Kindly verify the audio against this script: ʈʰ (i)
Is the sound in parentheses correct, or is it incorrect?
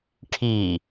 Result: correct